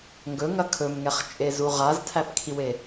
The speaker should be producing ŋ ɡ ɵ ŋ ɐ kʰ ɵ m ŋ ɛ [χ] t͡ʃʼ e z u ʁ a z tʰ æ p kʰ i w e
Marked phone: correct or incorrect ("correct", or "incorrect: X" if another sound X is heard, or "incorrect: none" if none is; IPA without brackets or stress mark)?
correct